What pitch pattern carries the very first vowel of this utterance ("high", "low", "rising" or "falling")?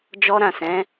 high